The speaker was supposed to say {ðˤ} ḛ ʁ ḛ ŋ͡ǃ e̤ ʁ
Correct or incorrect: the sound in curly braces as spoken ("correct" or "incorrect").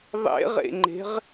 correct